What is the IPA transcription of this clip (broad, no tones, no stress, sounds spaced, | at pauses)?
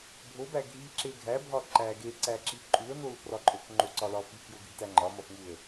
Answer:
bʱ o b æ ɡʱ i ǁ e ɡʱ æ bʱ ɒ ǃ æ ɡ e ǀ æ ǁ i ǃʼ u ə̯ n o l p r ɒ ǃʼ o k ŋ͡ǃ o ǀ ɒ l ɒ f i k j o ɡʱ i t æ ŋ͡ǃ ɒ m ɒ f ŋ u ə̯